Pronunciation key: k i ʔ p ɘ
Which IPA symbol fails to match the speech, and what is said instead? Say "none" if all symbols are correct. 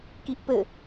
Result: none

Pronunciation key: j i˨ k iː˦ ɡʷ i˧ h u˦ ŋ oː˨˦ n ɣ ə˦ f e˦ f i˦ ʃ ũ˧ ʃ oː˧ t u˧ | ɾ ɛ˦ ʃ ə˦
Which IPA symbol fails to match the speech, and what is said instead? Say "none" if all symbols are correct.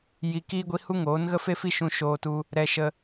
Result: none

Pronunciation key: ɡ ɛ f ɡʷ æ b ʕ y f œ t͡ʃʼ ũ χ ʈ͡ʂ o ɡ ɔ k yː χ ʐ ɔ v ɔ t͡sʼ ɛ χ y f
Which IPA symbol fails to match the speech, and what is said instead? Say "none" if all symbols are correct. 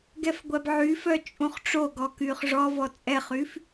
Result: none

